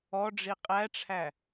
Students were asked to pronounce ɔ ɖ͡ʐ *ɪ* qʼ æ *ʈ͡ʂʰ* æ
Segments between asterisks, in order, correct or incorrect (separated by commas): incorrect, correct